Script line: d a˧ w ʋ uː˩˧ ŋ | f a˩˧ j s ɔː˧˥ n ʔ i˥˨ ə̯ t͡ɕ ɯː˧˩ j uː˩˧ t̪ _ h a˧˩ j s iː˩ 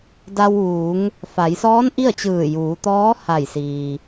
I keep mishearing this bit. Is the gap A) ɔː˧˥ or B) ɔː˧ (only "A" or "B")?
A